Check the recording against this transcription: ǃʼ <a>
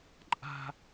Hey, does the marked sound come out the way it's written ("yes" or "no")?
no